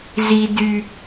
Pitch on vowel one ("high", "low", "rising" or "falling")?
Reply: high